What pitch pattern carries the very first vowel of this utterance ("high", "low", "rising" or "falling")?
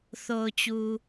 low